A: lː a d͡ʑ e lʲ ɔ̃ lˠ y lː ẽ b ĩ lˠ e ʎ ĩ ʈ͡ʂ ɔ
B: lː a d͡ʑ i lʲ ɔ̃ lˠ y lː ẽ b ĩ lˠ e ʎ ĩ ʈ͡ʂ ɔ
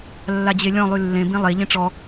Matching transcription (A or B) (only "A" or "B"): A